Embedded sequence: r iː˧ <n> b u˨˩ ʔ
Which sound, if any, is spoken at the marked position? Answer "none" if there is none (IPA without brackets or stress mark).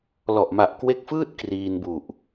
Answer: n